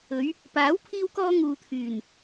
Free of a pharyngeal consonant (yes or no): yes